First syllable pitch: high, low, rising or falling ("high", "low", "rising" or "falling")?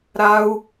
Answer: low